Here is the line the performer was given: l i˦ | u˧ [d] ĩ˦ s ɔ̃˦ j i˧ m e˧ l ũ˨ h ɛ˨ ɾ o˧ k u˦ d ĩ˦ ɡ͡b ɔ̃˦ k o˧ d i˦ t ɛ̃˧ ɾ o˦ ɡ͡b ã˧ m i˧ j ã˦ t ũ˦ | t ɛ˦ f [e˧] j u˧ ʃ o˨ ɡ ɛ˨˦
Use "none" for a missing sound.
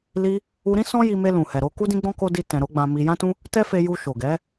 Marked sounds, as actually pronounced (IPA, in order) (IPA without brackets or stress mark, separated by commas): ɾ, e˧